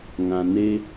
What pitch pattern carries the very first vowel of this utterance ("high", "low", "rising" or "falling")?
low